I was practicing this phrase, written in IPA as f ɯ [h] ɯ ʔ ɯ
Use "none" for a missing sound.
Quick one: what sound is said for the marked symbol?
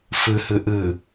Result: h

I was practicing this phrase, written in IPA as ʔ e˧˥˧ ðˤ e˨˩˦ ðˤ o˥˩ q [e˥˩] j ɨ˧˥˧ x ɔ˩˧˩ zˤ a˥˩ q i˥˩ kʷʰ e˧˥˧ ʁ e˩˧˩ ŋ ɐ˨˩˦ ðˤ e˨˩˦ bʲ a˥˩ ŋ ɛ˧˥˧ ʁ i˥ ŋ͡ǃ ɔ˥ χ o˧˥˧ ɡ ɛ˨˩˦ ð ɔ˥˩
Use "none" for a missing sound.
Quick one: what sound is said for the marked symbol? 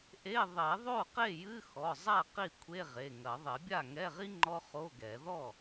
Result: e˥˩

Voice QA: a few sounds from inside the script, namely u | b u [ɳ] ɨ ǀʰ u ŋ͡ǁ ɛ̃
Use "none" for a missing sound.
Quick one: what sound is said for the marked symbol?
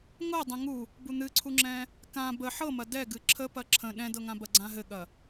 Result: n̪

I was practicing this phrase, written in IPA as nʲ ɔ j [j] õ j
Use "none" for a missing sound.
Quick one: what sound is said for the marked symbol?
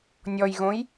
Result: ɣ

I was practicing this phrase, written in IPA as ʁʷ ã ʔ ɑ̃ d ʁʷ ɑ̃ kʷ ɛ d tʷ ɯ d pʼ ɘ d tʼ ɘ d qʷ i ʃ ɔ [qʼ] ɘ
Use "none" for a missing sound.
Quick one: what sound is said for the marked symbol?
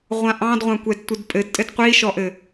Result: ʔ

